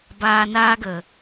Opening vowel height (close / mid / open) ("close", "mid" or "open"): open